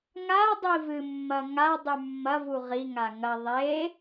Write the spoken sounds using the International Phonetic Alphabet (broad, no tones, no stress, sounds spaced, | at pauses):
ŋ a dˤ i v ɨ mː ɐ ŋ a dˤ ʉ mː ɐ v u ʁ i ŋ a ŋ ɐ ðˤ e